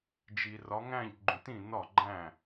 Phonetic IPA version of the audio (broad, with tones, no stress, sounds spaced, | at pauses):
d͡ʒ i˨ r ɒ˨˦ ŋ æ̃˥˩ ʎ ɡ͡ǃ ũ˨ t ĩ˥˩ n ɒ˥˩ ɡ͡ǃ æ̃˥˩